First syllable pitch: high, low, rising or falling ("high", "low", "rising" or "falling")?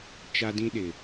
high